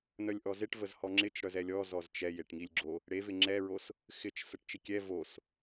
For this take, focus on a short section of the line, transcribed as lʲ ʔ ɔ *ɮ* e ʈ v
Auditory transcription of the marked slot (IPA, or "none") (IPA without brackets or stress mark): z